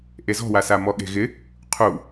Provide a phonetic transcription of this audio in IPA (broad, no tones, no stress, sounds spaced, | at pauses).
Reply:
ʔ e z ɔ̤ w a s a m ɔ ɠ e̤ ɣ ɪ | qʰ u